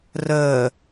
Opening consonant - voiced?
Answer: yes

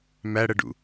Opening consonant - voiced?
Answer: yes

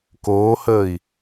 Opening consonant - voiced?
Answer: no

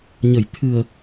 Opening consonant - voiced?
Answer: yes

